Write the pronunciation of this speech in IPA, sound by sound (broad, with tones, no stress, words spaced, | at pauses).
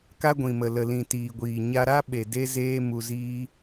ka˦ɡʷĩ˨mə˨ lə˨lĩ˨tiː˨ɡʷiː˨ ɲa˧ɾa˦ ɓe˨ de˦zeː˦ mu˧ziː˦